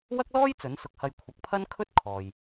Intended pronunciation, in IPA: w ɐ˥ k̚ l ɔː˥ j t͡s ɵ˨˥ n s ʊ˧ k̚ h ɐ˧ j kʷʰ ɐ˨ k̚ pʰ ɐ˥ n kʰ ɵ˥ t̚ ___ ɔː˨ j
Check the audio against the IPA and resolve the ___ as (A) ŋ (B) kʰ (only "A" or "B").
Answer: B